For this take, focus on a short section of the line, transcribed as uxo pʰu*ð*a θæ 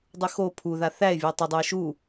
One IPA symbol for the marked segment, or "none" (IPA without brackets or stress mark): ð